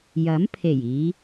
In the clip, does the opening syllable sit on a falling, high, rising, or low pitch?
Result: rising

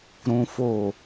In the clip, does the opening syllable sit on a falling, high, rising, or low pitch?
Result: high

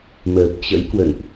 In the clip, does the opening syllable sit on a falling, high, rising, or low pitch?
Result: low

